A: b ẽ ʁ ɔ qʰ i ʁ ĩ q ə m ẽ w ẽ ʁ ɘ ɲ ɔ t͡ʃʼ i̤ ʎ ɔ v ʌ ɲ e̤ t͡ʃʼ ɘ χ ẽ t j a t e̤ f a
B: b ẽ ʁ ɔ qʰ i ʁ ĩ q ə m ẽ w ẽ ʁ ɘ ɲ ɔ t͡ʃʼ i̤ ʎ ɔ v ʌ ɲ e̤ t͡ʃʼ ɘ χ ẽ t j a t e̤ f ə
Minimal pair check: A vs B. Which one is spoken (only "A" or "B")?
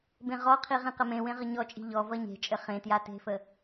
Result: B